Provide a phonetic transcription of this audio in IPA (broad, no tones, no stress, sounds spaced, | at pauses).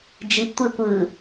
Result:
d͡ʒ i p tʷ e kʷ ɯ